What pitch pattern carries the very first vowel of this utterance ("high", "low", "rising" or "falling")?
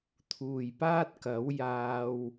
low